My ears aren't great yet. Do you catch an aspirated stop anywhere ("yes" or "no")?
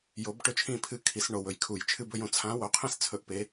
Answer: yes